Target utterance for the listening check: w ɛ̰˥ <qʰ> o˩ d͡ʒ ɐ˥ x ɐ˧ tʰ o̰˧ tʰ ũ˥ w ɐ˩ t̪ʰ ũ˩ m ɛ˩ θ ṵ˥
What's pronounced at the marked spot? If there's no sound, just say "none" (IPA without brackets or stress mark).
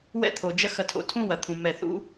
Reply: t̪ʰ